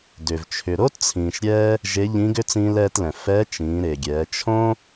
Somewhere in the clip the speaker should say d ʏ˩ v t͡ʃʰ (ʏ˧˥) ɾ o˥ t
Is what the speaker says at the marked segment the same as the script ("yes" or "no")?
no